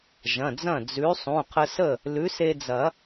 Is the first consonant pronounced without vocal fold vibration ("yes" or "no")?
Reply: no